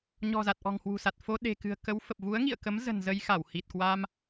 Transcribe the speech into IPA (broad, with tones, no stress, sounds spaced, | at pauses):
ɲ ɔ̤˨˩ z a˨˩ t̚ ʔ ɔ̤˨˩ ŋ h w ṳ˨˩ s a˨˩ t̚ f o˧ ɗ e̤˨˩ k ɨ̤˨˩ ə̯ k ə˨˦ w f ə˨˩ p̚ v u˨˦ ə̯ ŋ ḭ˧˨ ə̯ k ə˨˦ m z ə̤˨˩ n z ə˧ j x a˧˩ w h i˨˩ t̚ k w a˧ m